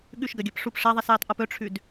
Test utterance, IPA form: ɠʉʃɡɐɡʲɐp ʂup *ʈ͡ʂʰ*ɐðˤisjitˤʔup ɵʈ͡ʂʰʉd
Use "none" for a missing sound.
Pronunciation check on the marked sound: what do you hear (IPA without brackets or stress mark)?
ʂ